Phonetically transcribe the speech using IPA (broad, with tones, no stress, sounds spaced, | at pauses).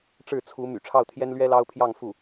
ʈ͡ʂ ɻ̩˥˩ t͡sʰ u˧˥ m y̰˨˩ ʈ͡ʂʰ ɑ˥˩ ʊ̯ t̪ʰ j ɛ˥ n l ɥ ɛ˥ l ɑ˥ ʊ̯ pʰ j ɑ˥˧ ŋ f u˥˩